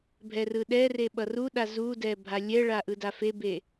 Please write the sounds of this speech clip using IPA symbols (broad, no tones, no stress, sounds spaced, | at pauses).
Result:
bʱ ɛ r ɯ ɗ ɛ r e ɓ ʌ r u ɗ a z u d ɛ bʱ a lʲ ɛ ɭ a ʔ ɯ d a f e b e